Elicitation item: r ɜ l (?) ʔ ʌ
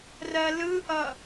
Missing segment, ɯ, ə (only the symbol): ɯ